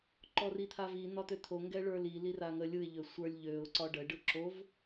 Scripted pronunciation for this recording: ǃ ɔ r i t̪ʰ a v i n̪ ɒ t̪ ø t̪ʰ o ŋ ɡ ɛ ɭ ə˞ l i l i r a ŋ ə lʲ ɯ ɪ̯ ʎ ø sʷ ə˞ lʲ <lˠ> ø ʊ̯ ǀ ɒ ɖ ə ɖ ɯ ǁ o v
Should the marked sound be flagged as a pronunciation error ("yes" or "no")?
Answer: yes